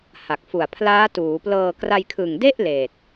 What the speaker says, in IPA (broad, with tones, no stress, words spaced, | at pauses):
ha˨˩k̚fu˨˩a̯pʰlaː˦˥ tuː˩˦plɤː˧ kra˧jkʰɯ˨˩ŋde˥˩ʔ leː˨˩t̚